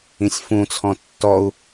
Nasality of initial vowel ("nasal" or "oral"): nasal